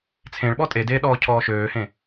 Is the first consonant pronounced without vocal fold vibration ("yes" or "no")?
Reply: yes